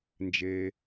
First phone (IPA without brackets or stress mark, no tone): n